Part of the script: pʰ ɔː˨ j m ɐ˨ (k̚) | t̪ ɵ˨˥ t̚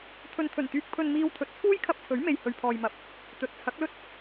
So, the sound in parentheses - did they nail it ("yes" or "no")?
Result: no